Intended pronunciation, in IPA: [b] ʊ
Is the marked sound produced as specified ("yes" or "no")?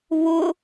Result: no